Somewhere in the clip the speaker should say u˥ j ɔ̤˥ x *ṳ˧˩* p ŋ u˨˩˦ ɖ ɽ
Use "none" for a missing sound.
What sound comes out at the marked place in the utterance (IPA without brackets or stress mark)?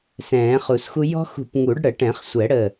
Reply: ṳ˧˩